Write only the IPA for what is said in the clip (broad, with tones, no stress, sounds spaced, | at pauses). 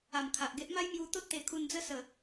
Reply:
a˨˩ m kʰ a˨ ʔ ɡ e˦ ʔ m a˦ j m j u˧ t̪ o˦ t̚ t̪ e˨˩ kʰ u˧ n d͡z ə˦ s ə˨˩